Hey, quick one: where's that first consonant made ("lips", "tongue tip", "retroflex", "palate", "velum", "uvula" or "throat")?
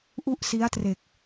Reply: throat